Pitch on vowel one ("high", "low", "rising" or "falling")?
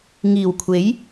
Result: low